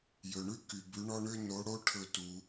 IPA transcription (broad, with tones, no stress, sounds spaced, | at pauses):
j ɵ˨ ɳ ʉ˦ k y˨ b ʉ˨˦ ɳ ɔ˦ ɳ ø˦ n o˨˦ ɽ o˦ ʈʰ ɵ˥˨ t u˨˦